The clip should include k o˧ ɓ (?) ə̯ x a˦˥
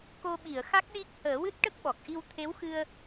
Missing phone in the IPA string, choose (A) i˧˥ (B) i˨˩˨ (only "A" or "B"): B